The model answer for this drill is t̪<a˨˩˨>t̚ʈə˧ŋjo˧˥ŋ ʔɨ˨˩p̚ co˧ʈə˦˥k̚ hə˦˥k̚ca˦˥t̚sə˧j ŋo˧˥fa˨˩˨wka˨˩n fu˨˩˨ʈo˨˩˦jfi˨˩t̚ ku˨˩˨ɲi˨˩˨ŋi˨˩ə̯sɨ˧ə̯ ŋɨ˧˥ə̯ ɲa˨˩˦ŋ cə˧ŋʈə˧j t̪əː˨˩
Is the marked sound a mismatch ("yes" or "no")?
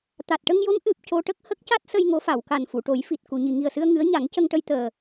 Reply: yes